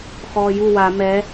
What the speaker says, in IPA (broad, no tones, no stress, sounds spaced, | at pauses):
x ɔː j u w a m ɛ